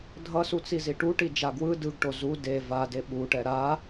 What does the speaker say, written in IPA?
dʱ ʌ s u t͡s i z i ʈ u ʈ i d͡ʒ a ɡ w ɯ d ɯ ɡ ʈ o z u d e v a d e ɓ u ʈ ɛ ɾ a

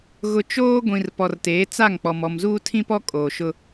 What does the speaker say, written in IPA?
ɣ ʊ˨ t͡ʃ oː˦ ɡʷ ĩ˨ r p ɔ˨ r t eː˨˦ t͡s a˦˨ ŋ k͡p ɔ˨ m ɔ˨ m z uː˦ tʰ ĩ˦ p ɔ˦ kʼ oː˨ ʃ ʊ˦

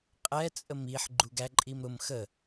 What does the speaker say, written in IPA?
qʼ ɛ t͡sʼ ə m i ħ ɡ͡ǃ u ɡ æ ǃʼ i m ɾ ʊ m x ə

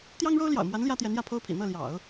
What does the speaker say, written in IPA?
t̪ j ɑ˥ ŋ ɻ o˥ ʊ̯ l j ɑ̰˨˩ ʊ̯ m w a˧˥ n l j ä˥ t̪ j ɛ˧˥ n j ä˥˩ pʰ o˥ ʊ̯ pʰ ḭ˨˩ n̪ ɤ˥˩ l j ɑ̰˨˩˦ ʊ̯

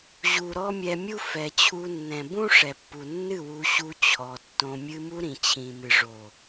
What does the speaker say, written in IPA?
ʑ u˨ ɾ ɔ˦ mʲ ɛ˧ mʲ u˦ f ɛ˨ t͡ɕʰ u˧ nː ɛ̃˨ b ũ˦ ʂ ɛ˨ pː u˨ nː ɨ˦˨ w u˧ ɕ u˧ t͡ɕʰ ɔ˨ tː õ˧ mʲ ɨ˧ m u˧ ɾ ĩ˨ t͡ɕʰ ĩ˨ m ɨ˨ ʐ o˨

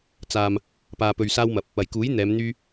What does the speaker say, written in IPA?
t͡s aː˨ m | p aː˨ p ɵ˨ ɥ s aː˧ w m ɐ˨ p̚ | ɐ˨˩ j k uː˨˥ j n̪ ɛː˨˧ m n̪ yː˧

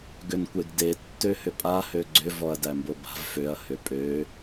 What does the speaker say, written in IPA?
ɡ ʏ n kʷ e ɡ d e tː ø h ʏ pʼ a h ø ɡ͡ǀ ʏ v ɔ ɐ̯ d æ m b o b a̤ v f ø ɐ̯ h ʏ pʼ ø

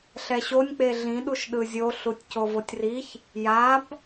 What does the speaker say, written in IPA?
ɬ ɛ ɕ o nʲ k͡p e ɮ ĩ ɗ u ʃ ɗ ɯ zʲ o ɬ u tʲ c o v o tʲ r i ç | j a b

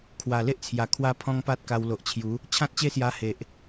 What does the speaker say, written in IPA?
kʰ w a˨˩ l e˦ ʔ t͡sʰ j a˨˩ kʰ w a˦ pʰ ɔ̃˦ ŋ p a˦ t̚ k a˧ w l o˨ ʔ t͡ɕʰ j u˨˦ | t͡ɕʰ ã˦ t̚ t͡ɕ e˥˧ s j a˧ h e˨ ʔ

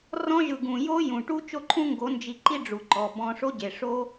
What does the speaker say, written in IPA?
r ɔ̃˧ ʒ ɯ˨ ɡ ũ˨ j o˦ j ũ˨ ʈ u˦ t͡ʃ o˦˨ ǃʰ ũ˦ ŋ ɡ o˨˦ n d͡ʒ i˧ ǃ i˦ ɖ͡ʐ u˨ ǃ ɔ˨ b ɔ̃˧ ʂ o˦ ɟ e˨ ʂ o˦

